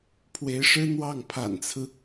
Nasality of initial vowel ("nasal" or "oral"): oral